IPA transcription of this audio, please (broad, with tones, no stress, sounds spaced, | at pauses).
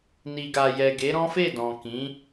n i˨ ɡ a˨ j ɛ˨ ɡ e˨˦ ɾ ɔ̃˦ f e˦˨ d ɔ̃˨ k ĩ˨˦